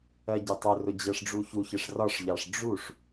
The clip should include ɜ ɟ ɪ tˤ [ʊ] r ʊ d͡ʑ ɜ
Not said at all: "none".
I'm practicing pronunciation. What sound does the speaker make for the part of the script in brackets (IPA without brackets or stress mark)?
ʊ